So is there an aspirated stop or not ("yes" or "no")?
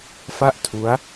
yes